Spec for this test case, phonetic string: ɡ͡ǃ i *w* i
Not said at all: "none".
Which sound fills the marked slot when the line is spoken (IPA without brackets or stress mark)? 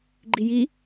j